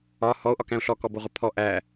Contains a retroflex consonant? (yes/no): no